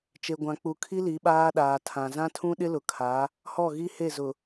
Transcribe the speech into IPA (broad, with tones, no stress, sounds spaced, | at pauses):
t͡ʃ e˨ ɡʷ ã˨ k͡p u˨ kʰ i˦ l i˨˦ ɓ aː˦ ɗ aː˨ tʰ ã˨ z ã˦ tʰ ũ˦ ɗ ɪ˦ l ʊ˨ kʰ a˨˦ | h ɔ˦˨ ɣ i˦ h e˦˨ z ʊ˨